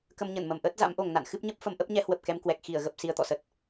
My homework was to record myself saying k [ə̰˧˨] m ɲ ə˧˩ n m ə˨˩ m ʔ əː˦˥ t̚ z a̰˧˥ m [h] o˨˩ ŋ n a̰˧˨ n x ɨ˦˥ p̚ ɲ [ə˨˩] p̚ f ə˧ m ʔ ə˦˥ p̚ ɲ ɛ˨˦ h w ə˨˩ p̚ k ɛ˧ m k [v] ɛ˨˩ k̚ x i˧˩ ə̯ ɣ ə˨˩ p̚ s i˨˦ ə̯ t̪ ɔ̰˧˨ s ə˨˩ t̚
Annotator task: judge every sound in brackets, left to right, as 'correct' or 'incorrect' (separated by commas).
incorrect, incorrect, incorrect, incorrect